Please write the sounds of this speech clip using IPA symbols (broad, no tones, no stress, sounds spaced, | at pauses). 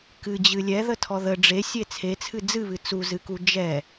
k ɨ d͡ʑ ɨ lʲ ɛ ð ə tʰ ɔ ð ə ɖ͡ʐ e sʲ e t͡sʰ e t͡sʰ ɨ d͡z ɨ β ɨ t͡s u z ɨ k u d͡ʒ ɛ